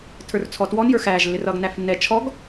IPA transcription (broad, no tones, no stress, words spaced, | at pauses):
tʰə˞rt͡sʰɔtwɔn jə˞xæːʒ lːɪrʌːɡnæfnːɛ t͡ʃʰɔɡ